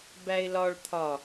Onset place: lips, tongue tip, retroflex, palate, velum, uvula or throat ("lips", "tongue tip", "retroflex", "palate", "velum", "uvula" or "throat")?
lips